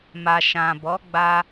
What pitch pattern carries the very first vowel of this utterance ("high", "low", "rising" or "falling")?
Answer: low